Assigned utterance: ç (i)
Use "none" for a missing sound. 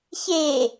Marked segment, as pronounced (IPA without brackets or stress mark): e